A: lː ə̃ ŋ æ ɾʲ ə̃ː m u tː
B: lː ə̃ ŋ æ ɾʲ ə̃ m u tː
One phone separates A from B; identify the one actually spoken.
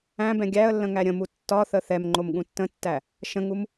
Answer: B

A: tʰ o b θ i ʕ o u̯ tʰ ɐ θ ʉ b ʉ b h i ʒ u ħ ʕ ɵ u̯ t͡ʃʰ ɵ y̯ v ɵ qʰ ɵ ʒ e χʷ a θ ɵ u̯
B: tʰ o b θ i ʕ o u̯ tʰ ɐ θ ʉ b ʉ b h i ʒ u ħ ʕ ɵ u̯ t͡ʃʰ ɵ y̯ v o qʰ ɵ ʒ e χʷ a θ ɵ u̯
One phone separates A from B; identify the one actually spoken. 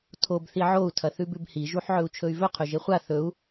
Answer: A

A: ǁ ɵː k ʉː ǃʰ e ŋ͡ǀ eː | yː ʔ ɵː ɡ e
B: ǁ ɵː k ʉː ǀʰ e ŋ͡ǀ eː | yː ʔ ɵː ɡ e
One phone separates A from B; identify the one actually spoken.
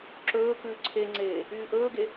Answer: B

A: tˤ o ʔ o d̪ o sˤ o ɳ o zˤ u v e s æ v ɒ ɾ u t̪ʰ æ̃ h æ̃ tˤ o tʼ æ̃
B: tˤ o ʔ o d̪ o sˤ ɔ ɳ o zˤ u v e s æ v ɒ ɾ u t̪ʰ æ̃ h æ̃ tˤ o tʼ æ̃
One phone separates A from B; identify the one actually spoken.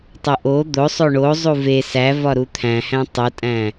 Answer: A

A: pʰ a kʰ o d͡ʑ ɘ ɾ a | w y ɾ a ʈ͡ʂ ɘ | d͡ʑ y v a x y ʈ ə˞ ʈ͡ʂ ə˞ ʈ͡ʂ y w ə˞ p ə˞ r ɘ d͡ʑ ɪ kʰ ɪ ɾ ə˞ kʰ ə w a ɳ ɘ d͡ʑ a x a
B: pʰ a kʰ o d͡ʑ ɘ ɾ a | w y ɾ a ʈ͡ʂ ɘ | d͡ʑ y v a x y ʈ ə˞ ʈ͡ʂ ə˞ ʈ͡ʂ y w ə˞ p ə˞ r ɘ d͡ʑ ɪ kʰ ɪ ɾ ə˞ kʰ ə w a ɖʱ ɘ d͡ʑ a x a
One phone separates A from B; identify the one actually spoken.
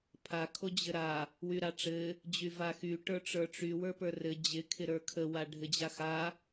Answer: B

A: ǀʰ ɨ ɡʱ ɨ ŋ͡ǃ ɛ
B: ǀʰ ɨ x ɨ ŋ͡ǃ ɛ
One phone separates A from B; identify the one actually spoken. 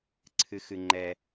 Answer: B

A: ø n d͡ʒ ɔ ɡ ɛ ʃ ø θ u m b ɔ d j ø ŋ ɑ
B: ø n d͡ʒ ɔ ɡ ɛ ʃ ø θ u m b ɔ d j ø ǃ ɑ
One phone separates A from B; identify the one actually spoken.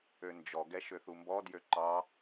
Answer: B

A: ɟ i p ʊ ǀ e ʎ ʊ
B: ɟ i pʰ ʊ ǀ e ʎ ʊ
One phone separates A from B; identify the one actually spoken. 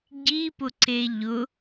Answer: A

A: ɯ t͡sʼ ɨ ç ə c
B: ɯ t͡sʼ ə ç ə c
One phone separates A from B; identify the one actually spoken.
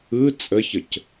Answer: B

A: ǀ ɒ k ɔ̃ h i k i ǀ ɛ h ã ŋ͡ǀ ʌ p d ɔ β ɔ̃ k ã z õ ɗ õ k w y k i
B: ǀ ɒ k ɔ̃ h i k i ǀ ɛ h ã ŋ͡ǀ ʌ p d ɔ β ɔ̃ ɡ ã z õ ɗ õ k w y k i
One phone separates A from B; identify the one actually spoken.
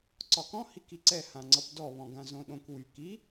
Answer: B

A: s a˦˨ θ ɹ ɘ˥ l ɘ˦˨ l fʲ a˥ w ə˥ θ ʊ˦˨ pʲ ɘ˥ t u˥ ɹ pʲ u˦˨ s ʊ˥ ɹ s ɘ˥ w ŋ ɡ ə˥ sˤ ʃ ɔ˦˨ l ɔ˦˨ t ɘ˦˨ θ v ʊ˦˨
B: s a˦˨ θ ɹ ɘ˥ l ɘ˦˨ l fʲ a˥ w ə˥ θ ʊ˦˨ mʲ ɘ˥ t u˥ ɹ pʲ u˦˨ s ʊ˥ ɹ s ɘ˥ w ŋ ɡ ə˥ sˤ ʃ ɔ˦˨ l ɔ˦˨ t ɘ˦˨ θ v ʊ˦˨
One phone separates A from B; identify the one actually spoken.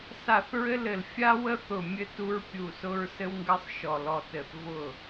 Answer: B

